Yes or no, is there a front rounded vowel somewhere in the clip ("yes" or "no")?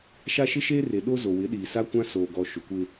no